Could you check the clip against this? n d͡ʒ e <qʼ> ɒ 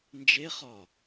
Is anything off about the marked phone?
yes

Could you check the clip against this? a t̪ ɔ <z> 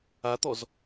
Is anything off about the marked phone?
no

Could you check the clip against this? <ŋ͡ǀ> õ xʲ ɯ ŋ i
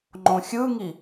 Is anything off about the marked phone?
yes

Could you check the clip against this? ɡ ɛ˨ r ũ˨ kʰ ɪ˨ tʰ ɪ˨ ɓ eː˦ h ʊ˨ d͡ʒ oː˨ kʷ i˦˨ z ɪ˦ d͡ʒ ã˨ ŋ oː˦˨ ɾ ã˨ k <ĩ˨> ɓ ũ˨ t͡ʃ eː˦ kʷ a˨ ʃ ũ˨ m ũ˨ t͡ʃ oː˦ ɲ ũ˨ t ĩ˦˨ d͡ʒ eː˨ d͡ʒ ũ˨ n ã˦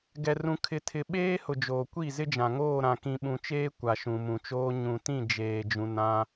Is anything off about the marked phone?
no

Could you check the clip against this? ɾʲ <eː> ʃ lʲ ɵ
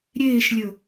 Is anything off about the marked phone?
no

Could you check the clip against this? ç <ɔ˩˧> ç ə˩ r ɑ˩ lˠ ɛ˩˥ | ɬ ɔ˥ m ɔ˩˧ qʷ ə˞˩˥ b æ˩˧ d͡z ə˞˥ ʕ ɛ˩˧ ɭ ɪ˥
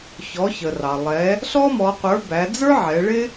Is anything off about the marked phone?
no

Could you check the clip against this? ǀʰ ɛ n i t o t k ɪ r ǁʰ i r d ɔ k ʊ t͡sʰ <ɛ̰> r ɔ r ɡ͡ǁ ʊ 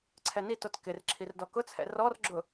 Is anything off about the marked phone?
no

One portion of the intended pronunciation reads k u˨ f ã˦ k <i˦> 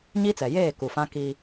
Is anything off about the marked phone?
no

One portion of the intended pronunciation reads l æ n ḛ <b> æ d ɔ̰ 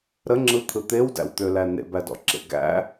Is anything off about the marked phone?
no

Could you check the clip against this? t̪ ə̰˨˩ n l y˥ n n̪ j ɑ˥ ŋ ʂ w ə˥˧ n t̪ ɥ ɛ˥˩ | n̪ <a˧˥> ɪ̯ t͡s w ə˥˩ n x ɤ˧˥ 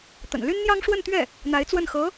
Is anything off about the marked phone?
no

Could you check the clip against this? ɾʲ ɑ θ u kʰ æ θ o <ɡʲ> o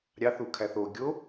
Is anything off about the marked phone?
no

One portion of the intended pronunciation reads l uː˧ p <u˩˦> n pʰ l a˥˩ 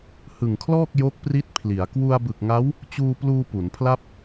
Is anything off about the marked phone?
no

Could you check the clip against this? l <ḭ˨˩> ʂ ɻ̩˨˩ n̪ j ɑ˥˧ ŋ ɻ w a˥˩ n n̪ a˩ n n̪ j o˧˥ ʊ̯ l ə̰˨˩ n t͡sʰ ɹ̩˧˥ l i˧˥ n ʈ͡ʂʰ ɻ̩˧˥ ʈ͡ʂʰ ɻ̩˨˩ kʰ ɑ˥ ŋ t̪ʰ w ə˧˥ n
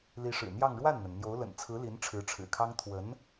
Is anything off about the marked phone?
yes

